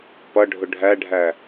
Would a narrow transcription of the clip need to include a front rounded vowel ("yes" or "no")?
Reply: no